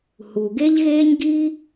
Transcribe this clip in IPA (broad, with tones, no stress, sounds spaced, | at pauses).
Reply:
h u˩ ɡ e˥ ʎ ɣ eː˥ ɲ ɡ i˥